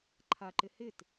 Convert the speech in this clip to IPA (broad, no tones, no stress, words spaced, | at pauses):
ǃʰaǃɪ hɪt